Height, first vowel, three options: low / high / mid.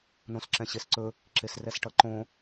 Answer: mid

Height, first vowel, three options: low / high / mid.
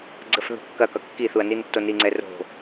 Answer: mid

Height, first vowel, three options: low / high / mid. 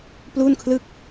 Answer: high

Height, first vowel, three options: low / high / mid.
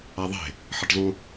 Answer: low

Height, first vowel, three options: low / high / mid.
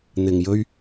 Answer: high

